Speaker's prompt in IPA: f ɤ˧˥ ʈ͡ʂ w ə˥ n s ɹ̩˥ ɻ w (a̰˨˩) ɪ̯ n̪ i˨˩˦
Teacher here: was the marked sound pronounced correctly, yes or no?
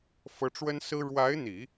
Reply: no